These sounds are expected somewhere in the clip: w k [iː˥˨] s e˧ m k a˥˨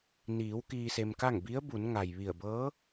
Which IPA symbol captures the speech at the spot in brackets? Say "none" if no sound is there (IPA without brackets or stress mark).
iː˧